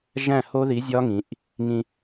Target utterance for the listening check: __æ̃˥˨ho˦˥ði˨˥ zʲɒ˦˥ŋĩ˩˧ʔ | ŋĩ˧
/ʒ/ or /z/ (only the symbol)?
ʒ